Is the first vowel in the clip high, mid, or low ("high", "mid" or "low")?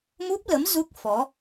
high